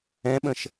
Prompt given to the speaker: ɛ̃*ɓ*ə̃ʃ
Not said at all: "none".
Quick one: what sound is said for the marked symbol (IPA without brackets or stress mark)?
ɓ